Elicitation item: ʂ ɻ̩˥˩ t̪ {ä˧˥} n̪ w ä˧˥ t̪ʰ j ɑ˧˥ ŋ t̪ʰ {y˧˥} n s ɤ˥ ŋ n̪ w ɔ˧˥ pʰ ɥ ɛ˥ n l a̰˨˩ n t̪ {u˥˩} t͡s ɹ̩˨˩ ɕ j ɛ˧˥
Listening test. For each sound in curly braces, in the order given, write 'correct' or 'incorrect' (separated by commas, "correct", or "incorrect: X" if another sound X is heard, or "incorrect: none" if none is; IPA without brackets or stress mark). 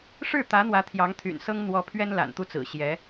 correct, incorrect: y̰˨˩, correct